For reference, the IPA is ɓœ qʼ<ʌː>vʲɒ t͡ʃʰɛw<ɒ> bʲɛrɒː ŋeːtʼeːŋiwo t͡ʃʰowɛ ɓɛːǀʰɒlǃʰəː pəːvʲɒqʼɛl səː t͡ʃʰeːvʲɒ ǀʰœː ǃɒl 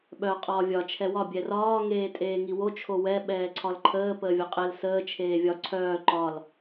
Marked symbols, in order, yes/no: no, yes

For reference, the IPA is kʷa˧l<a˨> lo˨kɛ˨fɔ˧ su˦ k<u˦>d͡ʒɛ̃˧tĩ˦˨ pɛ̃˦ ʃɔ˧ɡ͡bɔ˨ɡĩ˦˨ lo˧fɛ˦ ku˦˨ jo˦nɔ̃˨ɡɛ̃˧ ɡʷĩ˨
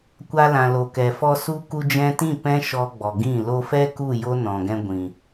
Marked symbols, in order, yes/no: no, no

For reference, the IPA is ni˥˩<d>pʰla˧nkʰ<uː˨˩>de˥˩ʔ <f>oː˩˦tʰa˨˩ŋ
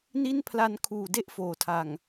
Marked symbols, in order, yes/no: no, yes, yes

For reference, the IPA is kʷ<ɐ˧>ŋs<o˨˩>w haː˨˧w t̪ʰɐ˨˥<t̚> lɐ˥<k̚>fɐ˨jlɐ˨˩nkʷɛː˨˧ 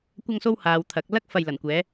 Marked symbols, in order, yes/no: yes, no, no, yes

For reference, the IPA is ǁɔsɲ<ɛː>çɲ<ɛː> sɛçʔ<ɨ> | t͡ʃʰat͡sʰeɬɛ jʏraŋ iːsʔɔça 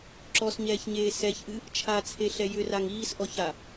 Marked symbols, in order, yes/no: yes, no, yes

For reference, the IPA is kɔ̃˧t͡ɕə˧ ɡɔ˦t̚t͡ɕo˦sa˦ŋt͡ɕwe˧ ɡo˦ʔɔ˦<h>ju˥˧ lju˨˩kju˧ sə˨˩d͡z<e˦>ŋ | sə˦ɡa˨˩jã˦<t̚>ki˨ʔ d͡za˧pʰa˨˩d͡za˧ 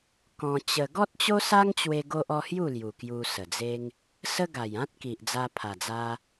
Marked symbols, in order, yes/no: yes, yes, yes

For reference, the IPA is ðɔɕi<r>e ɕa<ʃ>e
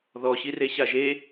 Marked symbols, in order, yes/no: yes, no

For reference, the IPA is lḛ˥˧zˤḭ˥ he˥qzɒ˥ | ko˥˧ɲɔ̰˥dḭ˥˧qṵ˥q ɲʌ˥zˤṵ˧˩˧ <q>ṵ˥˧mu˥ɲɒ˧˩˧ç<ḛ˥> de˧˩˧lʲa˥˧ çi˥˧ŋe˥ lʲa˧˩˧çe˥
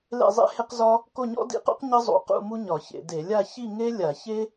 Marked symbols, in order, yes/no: yes, no

